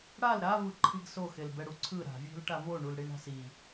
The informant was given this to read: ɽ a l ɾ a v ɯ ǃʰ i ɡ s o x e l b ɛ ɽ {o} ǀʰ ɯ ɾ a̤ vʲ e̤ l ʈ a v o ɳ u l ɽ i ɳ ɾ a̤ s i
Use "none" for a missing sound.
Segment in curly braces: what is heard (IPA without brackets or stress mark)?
u